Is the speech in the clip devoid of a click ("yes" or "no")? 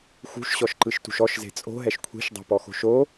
no